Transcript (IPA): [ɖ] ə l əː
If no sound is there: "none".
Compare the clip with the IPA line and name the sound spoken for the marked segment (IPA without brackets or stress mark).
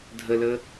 dʱ